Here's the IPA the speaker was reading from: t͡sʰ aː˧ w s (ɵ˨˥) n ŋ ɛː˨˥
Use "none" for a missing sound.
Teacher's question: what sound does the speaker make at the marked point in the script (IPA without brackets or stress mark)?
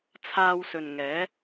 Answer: ɵ˨